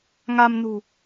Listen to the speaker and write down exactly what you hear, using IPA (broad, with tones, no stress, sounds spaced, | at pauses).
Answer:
ŋ a˧ m n ṳ˨˩